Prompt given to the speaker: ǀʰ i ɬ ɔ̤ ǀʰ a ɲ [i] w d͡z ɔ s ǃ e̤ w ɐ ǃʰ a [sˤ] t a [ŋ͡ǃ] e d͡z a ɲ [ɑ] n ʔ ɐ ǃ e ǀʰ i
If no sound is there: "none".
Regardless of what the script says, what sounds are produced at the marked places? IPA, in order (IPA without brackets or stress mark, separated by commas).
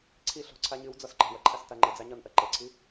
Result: ɨ, s, ŋ͡ǃ, ɒ